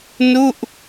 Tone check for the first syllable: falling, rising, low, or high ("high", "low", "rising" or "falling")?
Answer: falling